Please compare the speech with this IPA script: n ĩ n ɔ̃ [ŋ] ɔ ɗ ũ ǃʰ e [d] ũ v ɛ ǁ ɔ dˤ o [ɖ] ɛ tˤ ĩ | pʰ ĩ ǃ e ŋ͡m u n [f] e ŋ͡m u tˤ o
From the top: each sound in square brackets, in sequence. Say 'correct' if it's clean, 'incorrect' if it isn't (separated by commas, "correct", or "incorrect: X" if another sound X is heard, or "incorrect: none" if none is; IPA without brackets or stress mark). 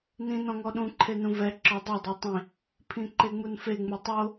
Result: correct, incorrect: n, incorrect: dˤ, correct